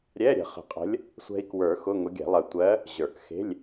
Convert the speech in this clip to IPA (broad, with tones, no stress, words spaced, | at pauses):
ɾʲɛ˧˥˧ɾʲə̤˨˩˦χə̤˨˩˦qʼə̤˧˥lʲ | sʷɛ̤˧i̯kwə˞˨˩˦ xʊ˧˥˧ŋʊ˧˥ɡʲɛ̤˨˩˦lˠɜ˧ tʷɜ˧˥ | ʑə˞˨˩˦kxe̤˧˥˧lʲ